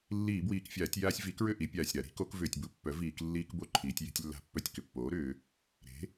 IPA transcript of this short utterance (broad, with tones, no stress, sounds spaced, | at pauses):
lː iː˧˩˧ b w iː˨˩ k fʲ aː˧˩˧ tʲ j aː˦ sʲ v i˩˥ k ɹ ʏ˥˨ ʔ i˩˧ pʲ aː˨˩ sʲ ɾ a˧˩˧ ɾ i̤˩˥ k o˩˥ k v ʏː˨˩ tʲ b u˧˩˧ pː œ˩˥ v iː˧˩˧ k lː iː˦ k b o˥˨ ǃʰ iː˩˧ tʲ j e̤˦ tʲ lː a̤˦ pː œ˦ tʲ k ʏ˩˧ pː oː˩˥ ɾ ʏː˩˧ | ɾ e̤˩˥